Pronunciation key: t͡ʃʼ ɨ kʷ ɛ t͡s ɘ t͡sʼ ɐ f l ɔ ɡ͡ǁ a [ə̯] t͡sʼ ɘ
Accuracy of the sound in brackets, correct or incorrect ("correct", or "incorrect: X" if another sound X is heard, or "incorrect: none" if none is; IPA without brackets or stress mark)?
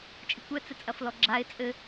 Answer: incorrect: ɪ̯